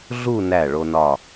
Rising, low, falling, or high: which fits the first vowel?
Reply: falling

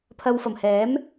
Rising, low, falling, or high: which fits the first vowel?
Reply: low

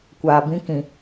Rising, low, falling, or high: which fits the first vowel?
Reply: low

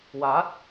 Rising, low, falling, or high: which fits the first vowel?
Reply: rising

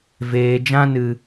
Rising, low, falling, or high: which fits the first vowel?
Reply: low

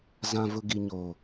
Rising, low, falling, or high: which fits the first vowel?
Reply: low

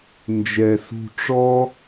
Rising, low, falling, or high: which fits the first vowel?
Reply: low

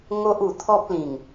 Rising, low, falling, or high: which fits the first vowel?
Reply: high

